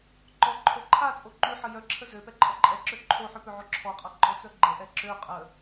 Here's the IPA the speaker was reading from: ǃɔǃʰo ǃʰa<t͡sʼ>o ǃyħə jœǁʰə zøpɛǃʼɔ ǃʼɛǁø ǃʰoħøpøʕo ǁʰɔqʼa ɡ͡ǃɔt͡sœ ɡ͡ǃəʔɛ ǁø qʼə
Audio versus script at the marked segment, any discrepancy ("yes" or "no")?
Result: no